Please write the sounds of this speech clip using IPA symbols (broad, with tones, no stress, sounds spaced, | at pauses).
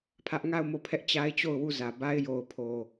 pʰ ä˦ ʔ ŋ a˦˨ ʊ̯ m o˦˨ pʰ ɛ˦ ʔ t͡ɕ a˦ ɪ̯ t͡ɕ o˦˨ ʊ̯ w u˦˨ z ä˨ b a˦ ɪ̯ j o˨ ʊ̯ pʰ o˨